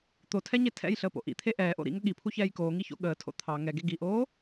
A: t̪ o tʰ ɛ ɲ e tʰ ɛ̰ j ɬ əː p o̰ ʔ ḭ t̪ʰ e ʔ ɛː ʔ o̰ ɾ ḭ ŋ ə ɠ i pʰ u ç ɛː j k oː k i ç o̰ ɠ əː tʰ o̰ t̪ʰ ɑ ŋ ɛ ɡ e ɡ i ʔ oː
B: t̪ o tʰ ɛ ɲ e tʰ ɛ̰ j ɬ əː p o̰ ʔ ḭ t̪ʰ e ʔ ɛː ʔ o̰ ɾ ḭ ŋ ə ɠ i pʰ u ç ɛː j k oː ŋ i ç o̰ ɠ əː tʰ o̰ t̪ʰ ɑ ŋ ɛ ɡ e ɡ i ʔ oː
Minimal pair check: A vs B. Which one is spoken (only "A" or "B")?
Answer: B